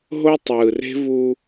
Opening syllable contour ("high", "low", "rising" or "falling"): high